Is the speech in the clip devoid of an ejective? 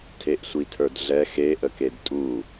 no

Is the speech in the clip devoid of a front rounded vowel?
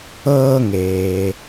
yes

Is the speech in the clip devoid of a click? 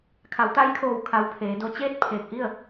yes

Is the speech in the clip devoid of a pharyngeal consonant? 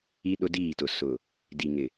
yes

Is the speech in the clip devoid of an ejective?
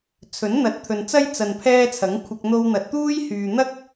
yes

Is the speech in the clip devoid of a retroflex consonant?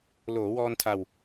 yes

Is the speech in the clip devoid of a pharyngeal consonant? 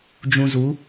yes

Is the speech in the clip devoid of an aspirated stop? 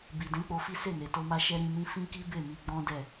yes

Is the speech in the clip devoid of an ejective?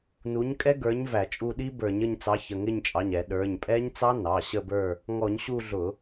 no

